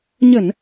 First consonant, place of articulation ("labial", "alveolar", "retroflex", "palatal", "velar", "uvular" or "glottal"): palatal